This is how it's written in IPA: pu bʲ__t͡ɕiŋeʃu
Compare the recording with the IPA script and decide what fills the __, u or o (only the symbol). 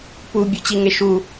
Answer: u